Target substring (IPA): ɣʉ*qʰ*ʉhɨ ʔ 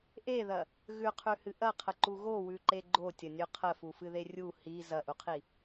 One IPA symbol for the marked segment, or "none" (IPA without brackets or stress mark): qʰ